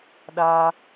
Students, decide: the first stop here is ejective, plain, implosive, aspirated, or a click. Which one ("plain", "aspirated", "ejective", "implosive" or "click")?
implosive